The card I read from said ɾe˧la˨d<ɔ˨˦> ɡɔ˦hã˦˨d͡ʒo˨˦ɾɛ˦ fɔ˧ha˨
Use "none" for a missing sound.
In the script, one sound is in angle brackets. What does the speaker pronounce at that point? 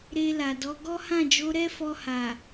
ɔ˨˦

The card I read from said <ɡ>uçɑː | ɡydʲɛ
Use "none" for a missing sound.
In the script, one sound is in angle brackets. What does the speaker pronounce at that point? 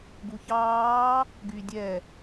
ɡ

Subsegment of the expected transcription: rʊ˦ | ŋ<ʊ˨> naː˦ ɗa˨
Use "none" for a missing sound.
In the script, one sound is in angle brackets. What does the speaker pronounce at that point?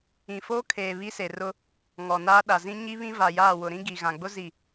ɔ˨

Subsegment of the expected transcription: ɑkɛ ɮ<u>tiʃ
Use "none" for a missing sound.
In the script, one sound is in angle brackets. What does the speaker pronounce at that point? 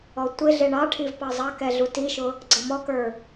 u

